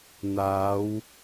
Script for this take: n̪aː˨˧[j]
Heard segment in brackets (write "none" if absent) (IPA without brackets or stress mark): w